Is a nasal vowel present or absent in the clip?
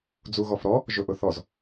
absent